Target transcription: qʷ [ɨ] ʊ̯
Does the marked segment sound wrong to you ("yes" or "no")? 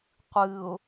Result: no